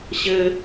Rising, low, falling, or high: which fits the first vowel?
low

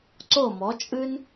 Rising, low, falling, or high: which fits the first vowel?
falling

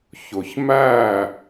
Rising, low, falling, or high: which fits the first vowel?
low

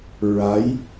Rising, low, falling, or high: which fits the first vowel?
rising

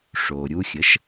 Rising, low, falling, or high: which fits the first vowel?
low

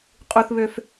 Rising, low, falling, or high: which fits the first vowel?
low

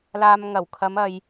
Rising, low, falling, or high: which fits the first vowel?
low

